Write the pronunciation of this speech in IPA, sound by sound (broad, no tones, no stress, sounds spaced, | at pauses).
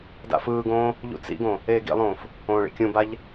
d a̰ f ɯː ɡ õː | ʎ ṵ t͡s ḭ ɡ õ | eː ɡ ḭ lˠ õː f | õː ɭ ḭ kʲ ũ b a ʎ